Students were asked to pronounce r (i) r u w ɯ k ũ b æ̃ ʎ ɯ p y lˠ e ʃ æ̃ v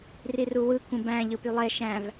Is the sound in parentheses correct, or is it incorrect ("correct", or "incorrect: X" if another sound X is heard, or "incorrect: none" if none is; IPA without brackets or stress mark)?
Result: correct